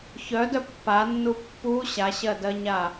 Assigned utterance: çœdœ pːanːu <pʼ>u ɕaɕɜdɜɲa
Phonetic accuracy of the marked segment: incorrect: pː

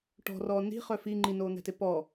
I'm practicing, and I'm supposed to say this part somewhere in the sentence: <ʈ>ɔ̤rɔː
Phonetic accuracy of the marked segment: correct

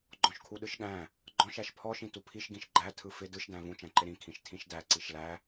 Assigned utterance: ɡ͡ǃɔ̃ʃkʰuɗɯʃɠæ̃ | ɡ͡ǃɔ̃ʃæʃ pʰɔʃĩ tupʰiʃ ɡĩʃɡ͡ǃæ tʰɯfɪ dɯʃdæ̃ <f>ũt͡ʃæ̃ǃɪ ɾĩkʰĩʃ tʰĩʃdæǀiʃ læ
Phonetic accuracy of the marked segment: incorrect: v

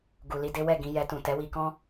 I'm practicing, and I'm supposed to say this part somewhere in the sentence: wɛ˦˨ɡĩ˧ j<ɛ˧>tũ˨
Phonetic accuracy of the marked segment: correct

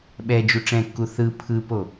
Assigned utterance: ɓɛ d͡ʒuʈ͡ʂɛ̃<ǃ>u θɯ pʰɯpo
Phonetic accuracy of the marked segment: incorrect: kː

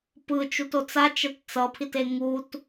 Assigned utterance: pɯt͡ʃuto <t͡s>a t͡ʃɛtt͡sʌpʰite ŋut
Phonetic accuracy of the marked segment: correct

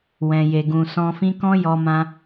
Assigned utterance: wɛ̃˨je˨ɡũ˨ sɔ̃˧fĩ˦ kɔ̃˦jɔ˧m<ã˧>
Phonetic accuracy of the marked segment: correct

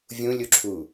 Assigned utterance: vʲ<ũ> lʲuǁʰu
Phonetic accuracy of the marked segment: correct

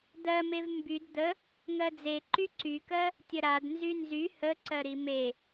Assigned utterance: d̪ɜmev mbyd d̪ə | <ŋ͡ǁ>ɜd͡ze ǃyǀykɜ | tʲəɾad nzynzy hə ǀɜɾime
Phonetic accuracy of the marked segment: incorrect: ŋ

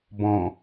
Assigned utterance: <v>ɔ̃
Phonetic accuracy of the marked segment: incorrect: b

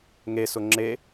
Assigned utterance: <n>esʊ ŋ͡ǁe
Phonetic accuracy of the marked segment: incorrect: ŋ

